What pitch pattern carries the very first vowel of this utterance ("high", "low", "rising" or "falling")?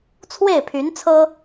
falling